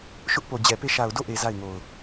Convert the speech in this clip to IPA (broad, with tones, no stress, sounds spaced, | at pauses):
ʃ ʊ˦ ʔ p o˨ d͡ʑ ɛ˨ p e˦˨ ʃ a˨ ʊ̯ d o˦˨ ʔ e˨ z a˦˨ ɪ̯ ŋ o˨ ʊ̯